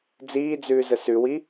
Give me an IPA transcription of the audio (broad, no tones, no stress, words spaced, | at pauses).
d͡ziːd͡zʉːzə sʉwi